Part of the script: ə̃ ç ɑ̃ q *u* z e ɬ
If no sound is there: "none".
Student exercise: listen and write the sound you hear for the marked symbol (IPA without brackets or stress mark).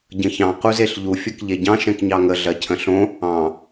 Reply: u